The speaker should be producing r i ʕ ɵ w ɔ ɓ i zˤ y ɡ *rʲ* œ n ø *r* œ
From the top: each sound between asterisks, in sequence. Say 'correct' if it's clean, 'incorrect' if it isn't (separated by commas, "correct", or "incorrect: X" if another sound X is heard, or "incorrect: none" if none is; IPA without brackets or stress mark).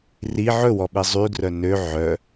incorrect: r, incorrect: ʕ